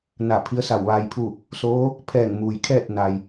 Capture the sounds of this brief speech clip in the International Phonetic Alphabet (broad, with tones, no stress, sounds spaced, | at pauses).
n a˧˩ pʰ i˧˥ ə̯ s a˧˩ w ʋ aː˧ j pʰ u˥˨ | s oː˧˥ | pʰ ɛː˧˩ ŋ m uː˩ j kʰ ɛː˥˨ t̚ n a˩ j